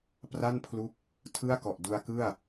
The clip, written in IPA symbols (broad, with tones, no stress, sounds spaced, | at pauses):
p r a˥˩ n pʰ l u˦˥ k̚ | tʰ ɯ˥˩ a̯ k ɔ˨˩ ʔ d u˧ a̯ k ɯ˥˩ a̯